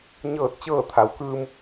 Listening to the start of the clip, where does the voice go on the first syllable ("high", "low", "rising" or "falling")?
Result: falling